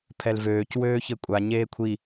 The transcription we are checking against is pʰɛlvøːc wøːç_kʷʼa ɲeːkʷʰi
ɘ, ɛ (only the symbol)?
ɘ